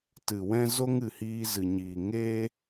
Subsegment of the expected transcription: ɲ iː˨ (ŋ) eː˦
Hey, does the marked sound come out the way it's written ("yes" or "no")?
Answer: yes